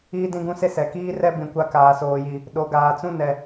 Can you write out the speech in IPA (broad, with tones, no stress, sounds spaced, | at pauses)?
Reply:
iː˦ d ĩ˦ ɡ ũ˦ s e˦ s ɛ˨ k iː˦ r ɛ˦ b ĩ˨ kʷ a˦ k aː˨ s oː˨ j i˨ | ɗ o˨ ɡ aː˨ t͡s ũ˦ n ɛ˨